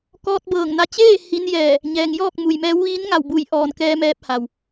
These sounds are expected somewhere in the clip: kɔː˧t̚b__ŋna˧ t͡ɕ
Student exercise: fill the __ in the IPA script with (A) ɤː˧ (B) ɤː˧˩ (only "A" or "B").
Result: B